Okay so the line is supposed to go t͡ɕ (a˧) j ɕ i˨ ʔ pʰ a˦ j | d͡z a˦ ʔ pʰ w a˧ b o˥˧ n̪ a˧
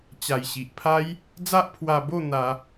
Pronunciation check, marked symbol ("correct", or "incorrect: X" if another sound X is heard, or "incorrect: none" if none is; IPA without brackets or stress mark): incorrect: a˨˩